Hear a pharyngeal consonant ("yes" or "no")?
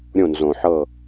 yes